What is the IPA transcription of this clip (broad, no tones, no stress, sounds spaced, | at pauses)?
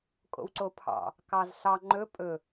kʼ o̰ w ǀ o pʰ ɑ̰ | k ɑ z ɬ ɑ ŋ͡ǃ ɵ pʼ ɵ